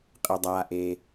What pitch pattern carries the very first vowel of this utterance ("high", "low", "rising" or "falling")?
low